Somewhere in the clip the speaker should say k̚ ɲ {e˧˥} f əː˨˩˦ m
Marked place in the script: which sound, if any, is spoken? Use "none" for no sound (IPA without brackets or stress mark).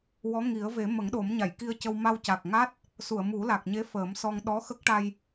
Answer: e˧˥